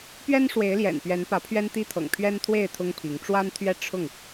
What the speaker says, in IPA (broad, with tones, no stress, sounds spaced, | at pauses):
p ɥ ɛ˦ n ʂ w e˨˦ ɪ̯ l j ɛ̰˨˩ n p ɥ ɛ˨˦ n p ä˨˦ pʰ ɥ ɛ˦ n t̪ i˦ t̪ʰ ɤ̰˨˩ ŋ pʰ ɥ ɛ˦ n t̪ʰ w e˥˨ ɪ̯ t̪ʰ ʊ˦ ŋ pʰ i˨˦ ŋ ʈ͡ʂ w a˦ n t̪ʰ ɥ ɛ˦ ʈ͡ʂʰ ʊ˥˨ ŋ